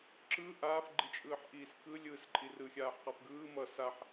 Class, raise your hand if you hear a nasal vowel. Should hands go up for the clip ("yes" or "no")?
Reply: no